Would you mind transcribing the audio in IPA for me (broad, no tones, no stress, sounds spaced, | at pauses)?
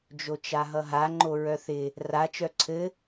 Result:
d͡ʒ o t͡ʃ a ɦ ʌ ɦ a ŋ͡ǃ o ɹ œ θ ɪ | r a t͡ʃ œ ǀʰ ɘ